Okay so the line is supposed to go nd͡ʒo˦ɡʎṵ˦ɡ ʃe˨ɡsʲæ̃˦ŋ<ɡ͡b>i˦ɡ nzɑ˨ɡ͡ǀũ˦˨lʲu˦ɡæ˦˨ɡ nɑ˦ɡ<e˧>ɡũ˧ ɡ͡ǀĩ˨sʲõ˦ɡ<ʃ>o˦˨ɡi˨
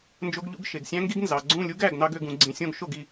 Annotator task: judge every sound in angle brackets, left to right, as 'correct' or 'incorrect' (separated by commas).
incorrect, incorrect, correct